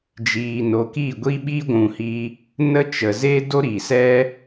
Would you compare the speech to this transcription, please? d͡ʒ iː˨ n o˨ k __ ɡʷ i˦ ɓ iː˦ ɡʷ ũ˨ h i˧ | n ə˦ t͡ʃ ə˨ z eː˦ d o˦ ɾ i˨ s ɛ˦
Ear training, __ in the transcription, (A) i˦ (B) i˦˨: B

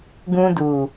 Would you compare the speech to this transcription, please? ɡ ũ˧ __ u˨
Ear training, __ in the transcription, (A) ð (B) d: B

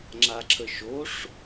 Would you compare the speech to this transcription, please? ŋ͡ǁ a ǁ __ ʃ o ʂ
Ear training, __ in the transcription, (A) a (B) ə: B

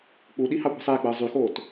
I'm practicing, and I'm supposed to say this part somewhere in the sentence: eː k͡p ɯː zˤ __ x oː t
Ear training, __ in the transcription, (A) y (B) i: A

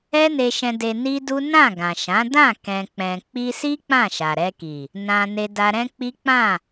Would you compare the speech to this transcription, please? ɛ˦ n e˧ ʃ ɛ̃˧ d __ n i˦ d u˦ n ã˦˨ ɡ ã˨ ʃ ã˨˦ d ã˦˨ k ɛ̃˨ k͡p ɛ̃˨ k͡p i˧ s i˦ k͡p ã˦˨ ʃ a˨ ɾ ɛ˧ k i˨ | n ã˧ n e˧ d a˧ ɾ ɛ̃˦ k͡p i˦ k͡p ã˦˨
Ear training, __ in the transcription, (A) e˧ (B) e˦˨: A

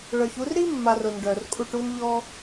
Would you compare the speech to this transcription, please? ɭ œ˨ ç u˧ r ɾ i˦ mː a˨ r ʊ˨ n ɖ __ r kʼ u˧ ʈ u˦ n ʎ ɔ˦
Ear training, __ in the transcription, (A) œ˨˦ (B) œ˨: B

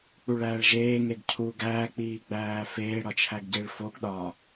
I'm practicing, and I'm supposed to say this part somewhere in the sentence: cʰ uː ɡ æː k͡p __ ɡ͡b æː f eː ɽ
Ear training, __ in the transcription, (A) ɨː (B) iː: B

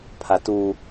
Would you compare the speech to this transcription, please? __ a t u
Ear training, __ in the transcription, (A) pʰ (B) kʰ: A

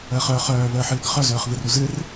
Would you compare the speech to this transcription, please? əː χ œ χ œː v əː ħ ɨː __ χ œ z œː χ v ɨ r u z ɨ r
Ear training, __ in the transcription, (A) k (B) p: A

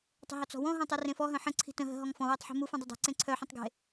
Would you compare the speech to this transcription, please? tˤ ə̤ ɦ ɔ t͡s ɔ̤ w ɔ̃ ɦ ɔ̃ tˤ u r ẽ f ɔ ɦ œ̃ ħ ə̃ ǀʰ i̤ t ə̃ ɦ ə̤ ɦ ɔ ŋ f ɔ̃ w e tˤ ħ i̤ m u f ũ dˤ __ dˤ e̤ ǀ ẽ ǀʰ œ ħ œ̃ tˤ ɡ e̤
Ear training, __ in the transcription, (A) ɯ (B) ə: B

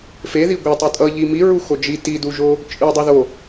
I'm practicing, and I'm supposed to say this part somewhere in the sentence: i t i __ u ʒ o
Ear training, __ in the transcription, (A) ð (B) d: B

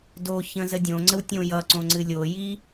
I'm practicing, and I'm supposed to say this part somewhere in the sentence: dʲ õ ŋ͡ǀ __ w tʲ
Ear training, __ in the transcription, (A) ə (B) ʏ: A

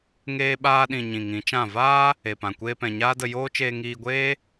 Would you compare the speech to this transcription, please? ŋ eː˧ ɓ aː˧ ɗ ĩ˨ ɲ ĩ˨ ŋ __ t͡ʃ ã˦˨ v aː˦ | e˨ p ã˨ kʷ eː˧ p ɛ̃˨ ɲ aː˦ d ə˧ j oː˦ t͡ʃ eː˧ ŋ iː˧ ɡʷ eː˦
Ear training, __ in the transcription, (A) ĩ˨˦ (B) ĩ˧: A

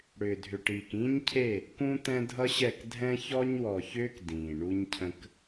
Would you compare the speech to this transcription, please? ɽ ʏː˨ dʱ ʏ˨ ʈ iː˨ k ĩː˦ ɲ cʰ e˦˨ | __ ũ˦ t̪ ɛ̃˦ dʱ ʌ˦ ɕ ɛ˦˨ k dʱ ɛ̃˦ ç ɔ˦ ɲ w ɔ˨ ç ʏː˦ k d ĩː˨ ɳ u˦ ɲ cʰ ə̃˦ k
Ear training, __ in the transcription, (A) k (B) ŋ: A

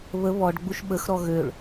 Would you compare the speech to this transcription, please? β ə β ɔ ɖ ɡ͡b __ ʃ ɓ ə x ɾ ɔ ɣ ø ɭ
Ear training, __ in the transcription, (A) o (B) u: B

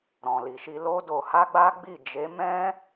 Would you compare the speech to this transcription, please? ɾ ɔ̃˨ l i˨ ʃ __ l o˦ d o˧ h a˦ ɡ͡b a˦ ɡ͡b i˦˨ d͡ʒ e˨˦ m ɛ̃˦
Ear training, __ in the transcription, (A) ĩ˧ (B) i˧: B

